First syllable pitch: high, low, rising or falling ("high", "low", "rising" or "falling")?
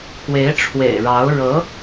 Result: rising